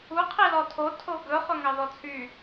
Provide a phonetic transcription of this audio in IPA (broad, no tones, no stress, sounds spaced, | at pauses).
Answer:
u qʰ i l ɔ tʰ o tʰ o ɡ ɵ χ ɵ ŋ ɑ ð ɔ t͡sʰ y